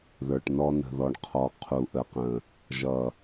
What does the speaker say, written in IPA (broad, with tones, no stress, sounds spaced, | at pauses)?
ð ə˞˨ ʈ n ɔ˦ n ə̤˨ ð ɔ˨ ɳ qʰ ɔ˨ qʰ u˨ ʔ ə˨ q ə̃˨ | ʒ ʌ˨